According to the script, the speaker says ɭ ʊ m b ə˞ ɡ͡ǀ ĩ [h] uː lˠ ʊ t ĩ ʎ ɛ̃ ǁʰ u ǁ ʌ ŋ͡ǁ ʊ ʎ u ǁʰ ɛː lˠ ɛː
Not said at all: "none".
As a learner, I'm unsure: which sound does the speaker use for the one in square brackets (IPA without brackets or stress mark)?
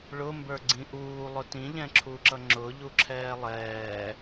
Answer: ʔ